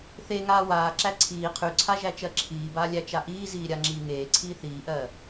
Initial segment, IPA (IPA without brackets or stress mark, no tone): θ